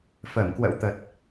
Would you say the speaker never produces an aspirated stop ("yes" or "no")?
yes